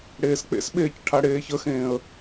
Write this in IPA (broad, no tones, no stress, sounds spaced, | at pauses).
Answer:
ɽ eː s k͡p ḛ s ɓ eː c ʈʰ a ɽ eː ç ə x ẽː ə̯